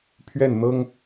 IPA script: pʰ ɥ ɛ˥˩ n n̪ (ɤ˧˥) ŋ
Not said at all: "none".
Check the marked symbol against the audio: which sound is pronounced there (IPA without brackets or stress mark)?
ɤ˥